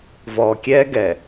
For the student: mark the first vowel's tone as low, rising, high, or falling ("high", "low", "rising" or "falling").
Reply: low